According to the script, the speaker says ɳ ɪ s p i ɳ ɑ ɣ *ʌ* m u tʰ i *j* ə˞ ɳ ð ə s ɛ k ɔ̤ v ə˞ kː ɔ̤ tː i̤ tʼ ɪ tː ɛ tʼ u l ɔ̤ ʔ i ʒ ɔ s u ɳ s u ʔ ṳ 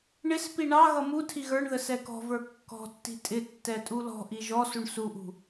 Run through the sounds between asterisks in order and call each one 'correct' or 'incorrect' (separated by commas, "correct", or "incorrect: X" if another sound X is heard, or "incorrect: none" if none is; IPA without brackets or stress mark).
correct, incorrect: ɣ